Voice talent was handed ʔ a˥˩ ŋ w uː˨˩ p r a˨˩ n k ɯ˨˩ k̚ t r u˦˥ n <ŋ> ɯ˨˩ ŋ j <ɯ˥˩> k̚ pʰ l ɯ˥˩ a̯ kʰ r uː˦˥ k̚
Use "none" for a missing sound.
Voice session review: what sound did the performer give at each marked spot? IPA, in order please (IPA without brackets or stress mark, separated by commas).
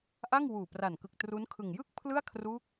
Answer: kʰ, ɯ˥˩